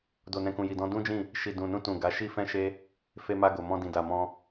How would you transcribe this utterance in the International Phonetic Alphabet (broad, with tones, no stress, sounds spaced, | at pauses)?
d o˨ n ɛ̃˨ k ũ˨ j i˨ d ɔ̃˧ d ũ˦ d͡ʒ ĩ˦˨ | ʃ i˨ d ũ˨ n ũ˧ t ũ˨ ɡ a˨˦ ʃ i˦ f ɛ̃˦ ʃ e˦ | f e˧ m a˧ ɡ o˨ m ɔ̃˧ d ĩ˨ d a˨ m ɔ̃˧